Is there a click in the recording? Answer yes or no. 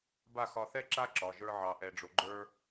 yes